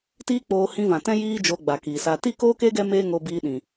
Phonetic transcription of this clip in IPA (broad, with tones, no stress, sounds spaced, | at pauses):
t iː˦ k͡p oː˧ h ĩ˧ v ã˨ t ɛ̃˦ j iː˦ d͡ʒ oː˧ ɡ͡b a˨ k iː˨ s a˧ t i˦˨ k oː˦ k e˦ ɡ ɛ˦ m eː˦ ŋ o˧ b iː˧ ɗ ĩ˨